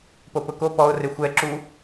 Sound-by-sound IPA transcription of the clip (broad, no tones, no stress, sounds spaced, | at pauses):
p o p ʊ k o p ɔ ʊ̯ r ɪ xʷ ɛ ǁ u